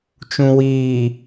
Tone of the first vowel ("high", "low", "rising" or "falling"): low